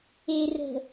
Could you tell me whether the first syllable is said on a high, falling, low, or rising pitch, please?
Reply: low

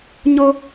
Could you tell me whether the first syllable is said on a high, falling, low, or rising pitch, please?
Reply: high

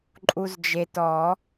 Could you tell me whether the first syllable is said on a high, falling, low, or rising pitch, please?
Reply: low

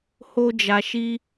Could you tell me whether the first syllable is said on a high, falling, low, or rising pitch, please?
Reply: high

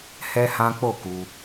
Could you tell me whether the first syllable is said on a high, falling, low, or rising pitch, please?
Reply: high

